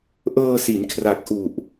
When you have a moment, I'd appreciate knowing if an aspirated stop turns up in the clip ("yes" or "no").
yes